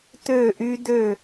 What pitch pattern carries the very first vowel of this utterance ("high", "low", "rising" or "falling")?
falling